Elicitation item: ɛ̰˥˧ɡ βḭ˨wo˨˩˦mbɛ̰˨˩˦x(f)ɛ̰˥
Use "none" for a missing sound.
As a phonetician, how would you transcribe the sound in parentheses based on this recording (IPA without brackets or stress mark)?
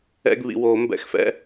f